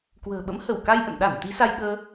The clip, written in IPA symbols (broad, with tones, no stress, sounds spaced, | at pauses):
k w ə̤ː˨˩ ɓ ə̰˧˥ m h ə˧˩ w k a˧ j ʔ ə̰˧˨ n ɗ a˧˩ n t̪ i˨˦ s a˧ j ɓ əː˧